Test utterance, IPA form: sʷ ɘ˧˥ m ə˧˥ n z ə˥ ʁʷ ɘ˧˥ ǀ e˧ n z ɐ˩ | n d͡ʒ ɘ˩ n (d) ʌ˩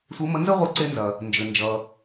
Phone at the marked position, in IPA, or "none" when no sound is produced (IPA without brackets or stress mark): d͡ʒ